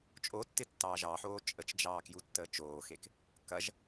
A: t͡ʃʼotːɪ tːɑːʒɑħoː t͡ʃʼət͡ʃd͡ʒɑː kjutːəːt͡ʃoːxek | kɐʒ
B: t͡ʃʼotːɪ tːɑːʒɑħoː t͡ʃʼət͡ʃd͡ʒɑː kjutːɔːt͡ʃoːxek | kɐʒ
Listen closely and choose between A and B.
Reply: A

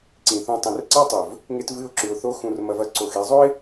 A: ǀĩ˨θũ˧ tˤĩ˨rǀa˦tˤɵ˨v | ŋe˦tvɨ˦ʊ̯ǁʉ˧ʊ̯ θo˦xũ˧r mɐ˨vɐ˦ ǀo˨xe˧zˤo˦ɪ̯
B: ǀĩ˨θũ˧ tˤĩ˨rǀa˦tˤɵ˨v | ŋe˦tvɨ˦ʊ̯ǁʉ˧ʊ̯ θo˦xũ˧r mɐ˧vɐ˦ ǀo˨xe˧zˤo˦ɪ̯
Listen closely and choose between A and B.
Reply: B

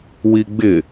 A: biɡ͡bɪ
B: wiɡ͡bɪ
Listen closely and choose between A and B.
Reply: B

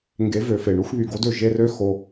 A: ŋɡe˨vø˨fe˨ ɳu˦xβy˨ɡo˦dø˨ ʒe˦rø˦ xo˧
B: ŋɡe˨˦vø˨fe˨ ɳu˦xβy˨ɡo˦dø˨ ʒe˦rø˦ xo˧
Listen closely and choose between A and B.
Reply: B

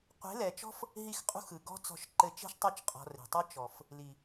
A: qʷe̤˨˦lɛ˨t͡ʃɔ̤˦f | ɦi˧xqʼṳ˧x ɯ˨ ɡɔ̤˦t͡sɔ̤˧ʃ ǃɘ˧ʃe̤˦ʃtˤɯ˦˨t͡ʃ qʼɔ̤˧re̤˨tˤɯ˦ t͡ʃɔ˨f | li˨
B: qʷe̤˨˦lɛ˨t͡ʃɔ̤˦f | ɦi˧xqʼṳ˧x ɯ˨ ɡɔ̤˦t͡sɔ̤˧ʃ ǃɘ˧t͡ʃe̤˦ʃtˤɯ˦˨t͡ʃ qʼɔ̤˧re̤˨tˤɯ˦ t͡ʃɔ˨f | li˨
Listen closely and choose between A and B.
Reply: B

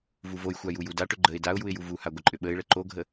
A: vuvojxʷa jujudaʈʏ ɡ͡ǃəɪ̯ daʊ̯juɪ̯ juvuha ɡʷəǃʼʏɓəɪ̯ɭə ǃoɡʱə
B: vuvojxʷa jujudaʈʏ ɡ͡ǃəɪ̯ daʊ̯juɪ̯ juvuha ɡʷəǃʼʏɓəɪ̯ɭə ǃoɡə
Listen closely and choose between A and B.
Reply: A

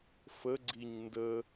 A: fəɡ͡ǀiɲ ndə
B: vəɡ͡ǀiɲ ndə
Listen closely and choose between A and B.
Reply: A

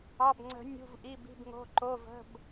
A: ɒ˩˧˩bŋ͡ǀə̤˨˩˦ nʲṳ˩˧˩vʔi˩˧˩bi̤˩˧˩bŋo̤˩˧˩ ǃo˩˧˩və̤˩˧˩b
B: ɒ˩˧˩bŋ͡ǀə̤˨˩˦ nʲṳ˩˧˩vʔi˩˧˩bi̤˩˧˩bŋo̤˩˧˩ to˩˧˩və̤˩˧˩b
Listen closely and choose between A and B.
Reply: A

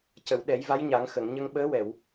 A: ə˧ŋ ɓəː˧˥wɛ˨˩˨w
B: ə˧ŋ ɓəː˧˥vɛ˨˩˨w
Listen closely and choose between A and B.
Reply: A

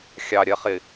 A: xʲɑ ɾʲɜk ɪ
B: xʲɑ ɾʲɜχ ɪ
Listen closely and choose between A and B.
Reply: B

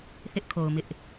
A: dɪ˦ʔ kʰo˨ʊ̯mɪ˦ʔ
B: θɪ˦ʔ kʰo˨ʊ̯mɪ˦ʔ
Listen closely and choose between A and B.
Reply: B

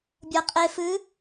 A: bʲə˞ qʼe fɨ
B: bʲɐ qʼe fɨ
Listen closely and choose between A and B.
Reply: B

